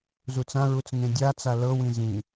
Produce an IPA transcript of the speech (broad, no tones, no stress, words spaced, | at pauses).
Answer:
zut͡sãɹut͡s ŋẽdʲat͡sa lɤwĩ zĩ